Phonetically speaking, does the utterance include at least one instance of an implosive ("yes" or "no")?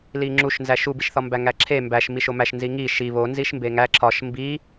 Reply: no